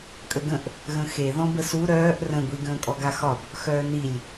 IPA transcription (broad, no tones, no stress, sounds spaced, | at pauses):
kʼ ə ɡ ə̃ ʔ | ɣ ə̃ x e ð ɔ̃ b ə s u ɾ œː ʔ r ə̃ ɡʷ i ɡ ə̃ː kʼ ɔ ɡ a x ɒ b | x œː n i lʲ